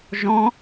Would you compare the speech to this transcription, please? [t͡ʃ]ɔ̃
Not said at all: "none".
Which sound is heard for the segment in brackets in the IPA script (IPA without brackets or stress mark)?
ʒ